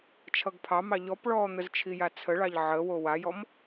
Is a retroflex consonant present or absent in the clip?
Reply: present